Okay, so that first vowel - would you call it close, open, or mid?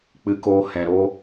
close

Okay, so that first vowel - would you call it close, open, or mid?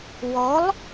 mid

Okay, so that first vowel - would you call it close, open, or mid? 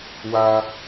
open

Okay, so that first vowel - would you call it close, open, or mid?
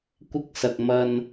close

